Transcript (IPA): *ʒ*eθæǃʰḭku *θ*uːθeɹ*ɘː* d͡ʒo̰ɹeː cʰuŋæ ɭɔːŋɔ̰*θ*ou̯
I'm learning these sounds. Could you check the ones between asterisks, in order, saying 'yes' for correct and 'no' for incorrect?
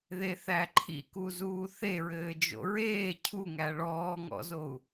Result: no, no, yes, no

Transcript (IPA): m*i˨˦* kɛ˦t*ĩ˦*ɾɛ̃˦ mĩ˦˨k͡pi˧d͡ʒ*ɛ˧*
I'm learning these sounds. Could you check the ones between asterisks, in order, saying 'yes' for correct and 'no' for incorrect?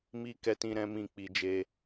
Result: no, yes, no

